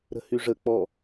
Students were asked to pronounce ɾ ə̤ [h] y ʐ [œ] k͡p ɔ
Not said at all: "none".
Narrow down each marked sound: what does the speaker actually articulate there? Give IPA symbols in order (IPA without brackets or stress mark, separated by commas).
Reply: h, ə